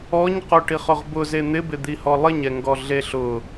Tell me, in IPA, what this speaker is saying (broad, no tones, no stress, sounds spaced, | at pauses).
ɔ ɲ q o ʈ i χ ʊ ʁ b ʊ z e n̪ ɪ b ɪ d̪ i h ɔ lˠ ɪ ɲ ɛ ŋ ɡ ɔ ɮ e ɬ ʊ